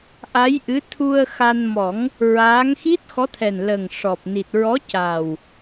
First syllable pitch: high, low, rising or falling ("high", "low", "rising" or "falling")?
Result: rising